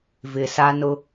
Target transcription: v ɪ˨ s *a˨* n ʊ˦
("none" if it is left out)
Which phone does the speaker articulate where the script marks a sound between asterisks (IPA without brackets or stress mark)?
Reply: a˦